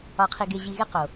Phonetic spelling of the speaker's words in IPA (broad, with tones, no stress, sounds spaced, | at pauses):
ɒ˧ qʰ i˧ ɡ e˧ ʑ i˧ ɣ e˦ q o˨